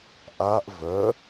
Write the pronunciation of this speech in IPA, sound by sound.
ʔ a ʔ v œ

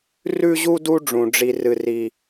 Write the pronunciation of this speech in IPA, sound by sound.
r ʉ˥ ʑ u˥ d u˥ ɖ͡ʐ ũ˧ ɖ͡ʐ i˥ r ɨ˥ r i˥

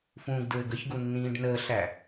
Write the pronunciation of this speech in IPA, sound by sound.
f ũː ɡ d ɹ ɘ ɡ ə ç ɡ u nː ĩː ɖ n əː ɬ æ

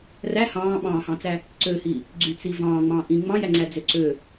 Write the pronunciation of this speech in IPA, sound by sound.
r æ h ɑ̃ː ɓ ɑ̃ː h ɑ̃ t͡s æ | ǀ ø h i | ɡ͡ǀ y t͡s i v ɑ̃ː ŋ͡m ɑ̃ː ʔ ĩː ŋ͡m ɑ̃ j æ ŋ͡ǀ æ d͡z ø ǀ ø

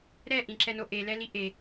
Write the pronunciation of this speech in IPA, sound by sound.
ɾ ɛ ʔ ĩ ǁ ɛ n o ʔ e l ɛ l i ʔ e

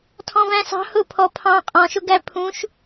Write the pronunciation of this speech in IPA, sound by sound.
tʰ ɔ̃ v æ̃ s ɑ̤ h ʊ pʰ ɔ pʰ ɑ̃ qʼ ɔ̃ ʃ ʊ ɡ æ pʰ ũ ʃ

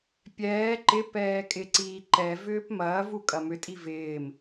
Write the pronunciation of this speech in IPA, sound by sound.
pʲ ɛː ǃ ɪ p ɛː kʼ ɪ ǀ iː ǃ ɛ v ʏː p m ɐː v u kʼ ɐ m ʏ tʼ i v ɪː m

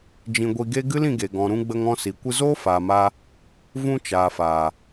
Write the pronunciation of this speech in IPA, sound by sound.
d͡ʒ ĩ˧ ɡʷ i˧ ɡ e˦ ɡ ɨ˦ l ĩ˧ ɡ e˨ ɡ ɔ̃˨ ɾ ũ˧ ɡ͡b ə˧ ŋ ɔ̃˧ s i˨ kʷ ɨ˧ z oː˦ f aː˨ m a˧ | v ũ˧ t͡ʃ aː˨ f aː˨

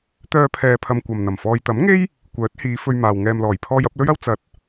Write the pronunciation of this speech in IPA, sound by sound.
t̪ œː˧ pʰ ɛː˨ pʰ ɐ˨ m kʷ ɐ˨ m n̪ ɐ˨˩ m f ɔː˨ j t̪ ɐ˨˥ m ŋ e˥ j | kʷ œː˨˥ t̚ h iː˨˧ f ɵ˧ ɥ m aː˨ w ŋ ɛː˨ m l ɔː˨˩ j pʰ ɔː˧ j ɐ˨˥ p̚ l ɵ˥ ɥ ɐ˥ w t͡s ɐ˨˥ t̚

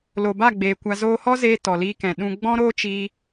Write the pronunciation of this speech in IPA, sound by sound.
l o˨ b a˦˨ ɡ͡b eː˨ kʷ a˧ z oː˧ h ɔ˦ z eː˧ t ɔ˨ l iː˧ k ɛ̃˨ ɗ ũ˧ ɡ͡b ɔ̃˦ ɾ oː˦ t͡ʃ iː˧

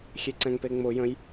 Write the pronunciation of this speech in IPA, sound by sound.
xʲ e ǀ ɛ̃ ŋ p e ŋ͡m ʊ j ə̃ j

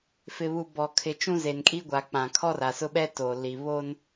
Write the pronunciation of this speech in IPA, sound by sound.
f ɪ˨ β u˨ b ɔ˨ kʰ ɪ˨ t͡ʃ ũ˦ z e˨ n kʼ i˦ ɡʷ a˨ k͡p ã˨ kʰ ɔ˦ r a˨ s ʊ˦ ɓ ɛ˦ t o˨ l i˨ β o˦ n

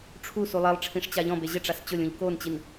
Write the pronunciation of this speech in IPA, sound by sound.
ʈ͡ʂʰ u s u lˠ e lˠ ʈ͡ʂʰ ĩ ʂ t͡ɕ a ʎ ɔ̃ b e ʑ ɪ ʈ͡ʂ a s t͡ɕ ʊ lʲ ũ ʎ k o n t͡ɕ i n

